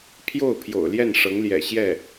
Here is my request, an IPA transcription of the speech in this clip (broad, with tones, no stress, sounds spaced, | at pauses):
pʰ j o˥˩ ʊ̯ pʰ j o̰˨˩ ʊ̯ l j ɛ˥˩ n ʂ ɤ˧˥ ŋ l j ɛ̰˨˩ ɕ j ɛ˥˩